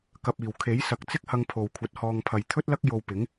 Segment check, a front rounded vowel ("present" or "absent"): absent